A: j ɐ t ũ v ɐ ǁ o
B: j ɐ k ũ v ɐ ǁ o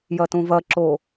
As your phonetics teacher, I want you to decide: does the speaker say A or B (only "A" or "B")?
A